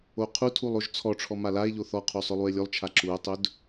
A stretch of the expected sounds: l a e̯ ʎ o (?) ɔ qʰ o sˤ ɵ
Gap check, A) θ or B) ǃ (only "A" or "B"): A